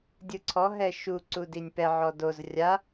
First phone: dʲ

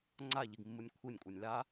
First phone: ŋ͡ǀ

